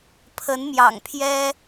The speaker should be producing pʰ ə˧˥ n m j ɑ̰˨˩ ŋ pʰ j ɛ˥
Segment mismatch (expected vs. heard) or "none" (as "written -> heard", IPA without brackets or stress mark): none